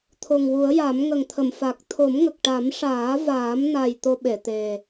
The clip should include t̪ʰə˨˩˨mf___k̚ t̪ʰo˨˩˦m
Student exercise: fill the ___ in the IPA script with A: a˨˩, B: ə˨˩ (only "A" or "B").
A